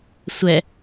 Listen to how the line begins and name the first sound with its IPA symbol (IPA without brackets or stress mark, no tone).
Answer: sʷ